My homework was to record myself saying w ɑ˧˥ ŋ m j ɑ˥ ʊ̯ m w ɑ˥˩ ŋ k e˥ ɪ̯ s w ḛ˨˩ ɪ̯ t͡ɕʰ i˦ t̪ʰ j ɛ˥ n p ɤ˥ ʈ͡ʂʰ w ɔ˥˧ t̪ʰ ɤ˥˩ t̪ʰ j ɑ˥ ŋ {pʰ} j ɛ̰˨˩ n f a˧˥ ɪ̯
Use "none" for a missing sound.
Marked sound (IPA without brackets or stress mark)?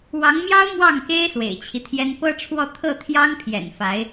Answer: pʰ